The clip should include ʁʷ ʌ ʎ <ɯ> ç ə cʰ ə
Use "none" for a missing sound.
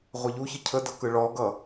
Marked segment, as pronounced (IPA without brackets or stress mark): u